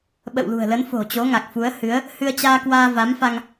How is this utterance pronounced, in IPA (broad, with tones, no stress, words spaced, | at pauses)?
ɓə̰˧˨wlṳ˨˩ə̯lə˨˦n fo̤˨˩t͡ɕo˨˦ŋa˨˩k̚fu˨˦ə̯ hɨ˨˦ə̯ | hɨ˧ə̯t͡ɕaː˧kwaː˧ va˨˦mfa˧ŋ